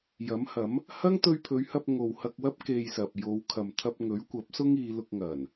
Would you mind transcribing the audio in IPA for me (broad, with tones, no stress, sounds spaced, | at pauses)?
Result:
j ɐ˨˥ m h ɐ˨˥ m | h ɐ˥ ŋ t̪ ɵ˧ ɥ pʰ ɵ˨˧ ɥ h ɐ˧ p̚ ŋ o˨ w h ɐ˧ k̚ w ɐ˥ p̚ k e˧ j s ɐ˨ p̚ j o˨˧ w kʰ ɐ˨ m t̪ʰ ɐ˧ p̚ ŋ ɵ˨˥ ɥ kʷ ɐ˨˥ p̚ s ʊ˥ ŋ iː˨˧ l ʊ˧ k̚ ŋ ɐ˨˩ n